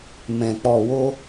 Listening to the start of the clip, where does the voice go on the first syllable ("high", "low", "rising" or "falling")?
low